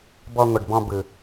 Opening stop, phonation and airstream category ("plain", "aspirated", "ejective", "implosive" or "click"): plain